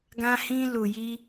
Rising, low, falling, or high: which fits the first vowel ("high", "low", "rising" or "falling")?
high